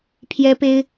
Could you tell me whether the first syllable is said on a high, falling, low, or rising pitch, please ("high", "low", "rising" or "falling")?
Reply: high